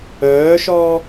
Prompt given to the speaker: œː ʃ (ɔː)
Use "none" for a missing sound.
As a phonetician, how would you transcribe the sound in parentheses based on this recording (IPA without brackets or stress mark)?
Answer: ɔː